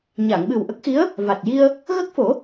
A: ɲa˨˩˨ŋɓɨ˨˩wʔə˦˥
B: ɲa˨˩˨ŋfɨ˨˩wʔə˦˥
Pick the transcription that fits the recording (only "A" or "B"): A